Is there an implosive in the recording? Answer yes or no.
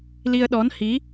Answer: yes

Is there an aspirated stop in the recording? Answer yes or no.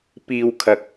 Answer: yes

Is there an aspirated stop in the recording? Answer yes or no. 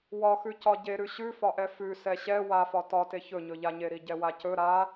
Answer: no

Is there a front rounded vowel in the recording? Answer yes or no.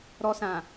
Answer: no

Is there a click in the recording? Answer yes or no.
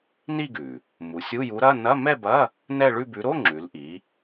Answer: yes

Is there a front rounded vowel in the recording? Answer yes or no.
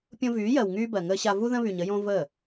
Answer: yes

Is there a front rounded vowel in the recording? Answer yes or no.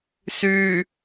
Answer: yes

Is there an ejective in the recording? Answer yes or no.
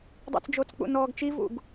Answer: no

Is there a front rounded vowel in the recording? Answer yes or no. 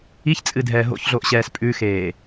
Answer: no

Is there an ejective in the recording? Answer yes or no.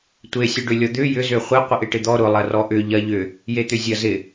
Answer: no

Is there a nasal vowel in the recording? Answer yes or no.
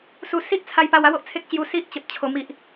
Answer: no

